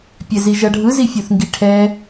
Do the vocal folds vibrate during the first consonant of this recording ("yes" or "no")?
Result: no